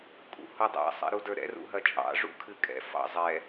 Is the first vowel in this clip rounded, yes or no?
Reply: yes